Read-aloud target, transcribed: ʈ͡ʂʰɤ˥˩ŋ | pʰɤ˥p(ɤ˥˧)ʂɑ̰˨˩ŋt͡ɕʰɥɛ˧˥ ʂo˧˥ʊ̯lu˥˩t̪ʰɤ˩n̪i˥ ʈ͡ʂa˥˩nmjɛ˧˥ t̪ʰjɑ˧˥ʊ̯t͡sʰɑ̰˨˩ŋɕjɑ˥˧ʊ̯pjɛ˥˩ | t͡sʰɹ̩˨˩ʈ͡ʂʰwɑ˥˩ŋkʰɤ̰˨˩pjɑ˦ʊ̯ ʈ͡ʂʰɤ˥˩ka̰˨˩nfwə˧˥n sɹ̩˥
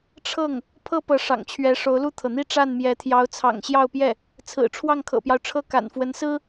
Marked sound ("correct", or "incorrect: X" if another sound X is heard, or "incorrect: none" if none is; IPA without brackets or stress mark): incorrect: ɤ˧˥